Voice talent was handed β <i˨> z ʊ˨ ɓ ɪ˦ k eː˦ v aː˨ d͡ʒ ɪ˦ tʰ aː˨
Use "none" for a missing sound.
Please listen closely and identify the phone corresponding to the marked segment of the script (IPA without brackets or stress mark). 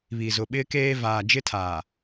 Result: i˨